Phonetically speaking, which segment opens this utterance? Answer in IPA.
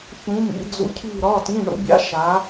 ç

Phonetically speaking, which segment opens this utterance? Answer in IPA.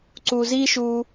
ǀ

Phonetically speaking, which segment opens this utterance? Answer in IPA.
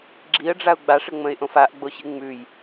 ɡ͡ǁ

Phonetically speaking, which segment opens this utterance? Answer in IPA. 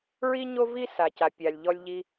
ɹ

